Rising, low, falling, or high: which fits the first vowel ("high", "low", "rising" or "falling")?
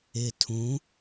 low